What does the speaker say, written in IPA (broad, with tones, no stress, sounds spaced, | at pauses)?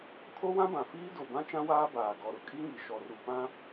kʰ o˦ w ã˦ b ã˨ f iː˦ d o˨ b ã˦ t͡ʃ ã˦ w aː˦ b aː˨ ɡ ɔ˨ ɾ ʊ˨ kʼ i˦ ŋ i˨ ʃ ɔ˨ r u˨ p ã˦